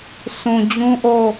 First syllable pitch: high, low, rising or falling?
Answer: low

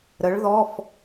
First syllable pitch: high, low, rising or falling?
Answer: rising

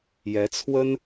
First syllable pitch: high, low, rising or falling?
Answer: rising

